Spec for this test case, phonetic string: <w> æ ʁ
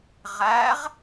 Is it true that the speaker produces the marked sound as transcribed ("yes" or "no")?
no